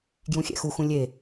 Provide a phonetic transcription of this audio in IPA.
ɡ j ũ xʲ ɛ̰ x u x ũ lʲ e

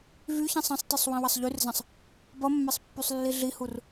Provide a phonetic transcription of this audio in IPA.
v y ç ĩ sˤ ɐ̃ sˤ t i sˤ w ĩ w ɐ sˤ ʎ y r z ɐ̃ sˤ | b ʌ mː ɛ sˤ pː y sˤ lː i ɮ i h u r

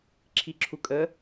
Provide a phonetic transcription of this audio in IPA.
ǁʰ i ǁʰ u kʼ ə

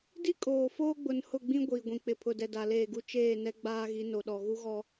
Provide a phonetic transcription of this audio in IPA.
d i˦ kʼ oː˨ f oː˦ ɡ͡b ʊ˨ n h ʊ˦˨ ɡ͡b ĩ˦ ɡʷ iː˨ ɡʷ ĩ˨ k͡p ɪ˨ pʰ ʊ˨ d ɛ˨ d a˨ l eː˦˨ ɡ u˦ t͡ʃ eː˦˨ n ɛ˦ ɡ͡b aː˦ ɣ i˨˦ n o˨ ɗ ɔ˨ ɣ u˦ ɣ ɔ˦

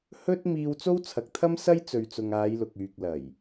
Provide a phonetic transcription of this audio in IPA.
h ɵ˥ t̚ m iː˧ w t͡s o˥ w t͡sʰ ɐ˨˥ k̚ t̪ʰ ɐ˥ m s ɐ˥ j t͡s ɵ˨ ɥ t͡s ʊ˨ ŋ aː˨˧ j l ʊ˨ k̚ yː˨ k̚ l ɐ˨˩ j

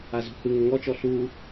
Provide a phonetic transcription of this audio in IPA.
a z ṳ h ɯ ŋ ʏ ŋ ɔ t͡ʃ ɔ ɬ u

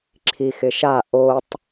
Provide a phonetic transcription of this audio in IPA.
ǁʰ i x ɪ ʃ a ʔ o tˤ

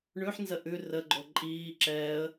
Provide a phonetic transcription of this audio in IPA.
ɳ ʉ ħ n z ə ʔ ʉ r ə ɡ͡ǃ o ǃʼ iː ǁ ɛ ə̯

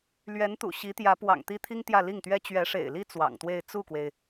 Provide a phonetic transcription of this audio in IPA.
l ɥ ɛ˧˥ n t̪ ṵ˨˩ ɕ i˧˥ t̪ j ä˧˥ p w ɑ̰˨˩ ŋ t̪ i˥ t̪ʰ i˥ ŋ t̪ j ä˥˧ l i˥˩ ŋ t̪ ɥ ɛ˥ t͡ɕ ɥ ɛ˧˥ ʂ ḛ˨˩ ɪ̯ l i˥ t͡s w ɑ̰˨˩ ŋ t̪ w e˥˧ ɪ̯ t͡s u˥˩ k w e˩ ɪ̯

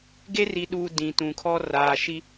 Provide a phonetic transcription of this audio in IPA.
ɡ e˦ r i˨ ɗ uː˨ d ĩ˨ t ũ˨ kʰ ɔ˦ r aː˨ ʃ i˦

